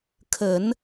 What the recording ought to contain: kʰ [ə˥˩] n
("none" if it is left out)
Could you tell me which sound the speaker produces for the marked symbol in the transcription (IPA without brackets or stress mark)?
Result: ə˨˩˦